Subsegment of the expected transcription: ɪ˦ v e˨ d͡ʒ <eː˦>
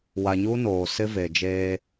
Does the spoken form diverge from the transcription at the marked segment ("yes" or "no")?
no